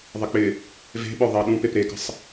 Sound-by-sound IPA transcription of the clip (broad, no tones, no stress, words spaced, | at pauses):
ðˤɪk͡pɪ | ve̤ɓœ ðˤɪɐ̯ɗũpep ɾekə̤sˤ